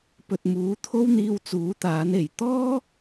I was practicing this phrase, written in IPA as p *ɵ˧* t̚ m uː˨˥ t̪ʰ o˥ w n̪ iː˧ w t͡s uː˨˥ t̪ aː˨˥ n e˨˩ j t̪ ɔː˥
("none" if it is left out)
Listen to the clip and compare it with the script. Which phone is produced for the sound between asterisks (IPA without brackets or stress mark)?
ɵ˨